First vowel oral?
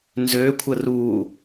yes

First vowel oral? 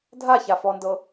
yes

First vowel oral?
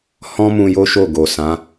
no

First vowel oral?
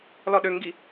yes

